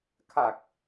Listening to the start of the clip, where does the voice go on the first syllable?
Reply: low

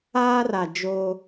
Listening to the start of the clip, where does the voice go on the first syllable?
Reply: high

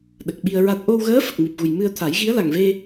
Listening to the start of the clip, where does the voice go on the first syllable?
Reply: low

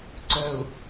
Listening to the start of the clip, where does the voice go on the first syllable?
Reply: low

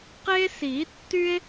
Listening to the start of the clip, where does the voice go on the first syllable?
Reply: high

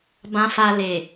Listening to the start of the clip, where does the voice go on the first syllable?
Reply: low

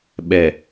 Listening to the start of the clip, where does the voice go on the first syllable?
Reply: low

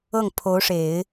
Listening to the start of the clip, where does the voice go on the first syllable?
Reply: falling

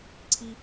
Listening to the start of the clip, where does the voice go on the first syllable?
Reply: low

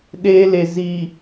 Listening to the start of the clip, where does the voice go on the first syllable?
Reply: high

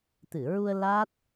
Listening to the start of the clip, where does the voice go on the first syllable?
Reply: low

